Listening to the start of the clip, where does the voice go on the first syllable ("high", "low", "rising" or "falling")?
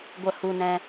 high